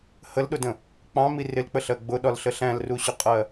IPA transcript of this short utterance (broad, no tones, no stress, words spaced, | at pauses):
həlɗʊdə̃ | k͡pɑ̃mi rɪlk͡pəɬɜ ɡ͡bʊɗɒlɬə ɬæ̃lruɕʊqʼɜ